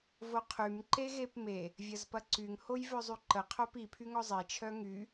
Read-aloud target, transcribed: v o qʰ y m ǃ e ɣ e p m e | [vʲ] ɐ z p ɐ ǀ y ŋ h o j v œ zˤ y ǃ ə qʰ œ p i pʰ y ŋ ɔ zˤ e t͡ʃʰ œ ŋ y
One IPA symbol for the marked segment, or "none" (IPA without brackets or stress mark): vʲ